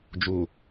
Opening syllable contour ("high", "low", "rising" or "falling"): low